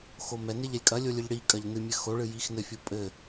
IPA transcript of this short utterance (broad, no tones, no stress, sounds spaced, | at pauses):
x o m ɛ n e ʎ ɛ lʲ kʼ ɐ lʲ o lʲ ɨ ʎ ɽ i kʼ ɐ ʎ n ɨ mʲ ɘ x o ɭ ɨ j i x n ɘ fʲ o pʼ ɘ